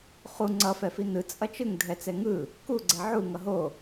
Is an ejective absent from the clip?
no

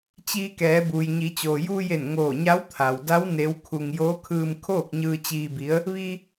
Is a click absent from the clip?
yes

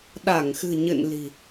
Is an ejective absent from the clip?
yes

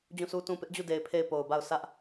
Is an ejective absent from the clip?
yes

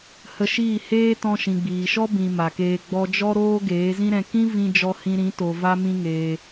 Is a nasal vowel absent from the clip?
no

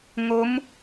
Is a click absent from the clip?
yes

